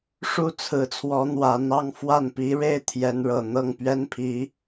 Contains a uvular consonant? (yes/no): no